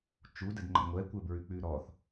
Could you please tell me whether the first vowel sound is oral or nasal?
oral